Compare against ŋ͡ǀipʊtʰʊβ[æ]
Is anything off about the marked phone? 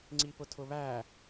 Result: no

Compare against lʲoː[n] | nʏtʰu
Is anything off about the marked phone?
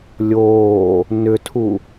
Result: yes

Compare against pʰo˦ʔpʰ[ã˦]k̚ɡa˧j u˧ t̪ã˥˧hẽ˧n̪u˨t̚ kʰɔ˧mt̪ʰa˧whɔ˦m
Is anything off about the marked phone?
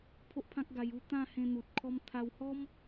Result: no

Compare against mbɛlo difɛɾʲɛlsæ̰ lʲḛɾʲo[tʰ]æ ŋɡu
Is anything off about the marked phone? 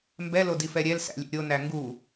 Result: yes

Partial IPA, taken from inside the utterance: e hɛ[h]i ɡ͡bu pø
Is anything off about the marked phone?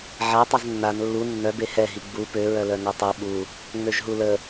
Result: yes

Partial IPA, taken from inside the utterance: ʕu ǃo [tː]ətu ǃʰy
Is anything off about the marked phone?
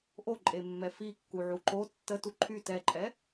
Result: no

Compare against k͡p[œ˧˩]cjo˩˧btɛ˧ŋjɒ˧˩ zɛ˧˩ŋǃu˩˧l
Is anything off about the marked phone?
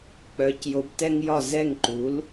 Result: yes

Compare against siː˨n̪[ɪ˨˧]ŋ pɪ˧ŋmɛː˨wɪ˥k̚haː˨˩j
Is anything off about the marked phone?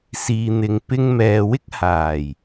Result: yes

